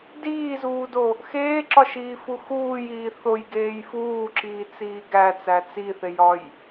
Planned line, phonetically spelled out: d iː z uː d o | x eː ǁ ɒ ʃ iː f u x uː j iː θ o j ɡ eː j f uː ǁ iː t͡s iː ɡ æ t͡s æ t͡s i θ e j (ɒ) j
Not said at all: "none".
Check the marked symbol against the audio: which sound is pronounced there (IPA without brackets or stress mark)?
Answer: ɒ